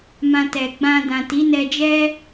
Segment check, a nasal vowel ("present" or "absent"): present